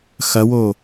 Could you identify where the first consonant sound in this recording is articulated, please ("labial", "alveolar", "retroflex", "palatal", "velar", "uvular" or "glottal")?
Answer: velar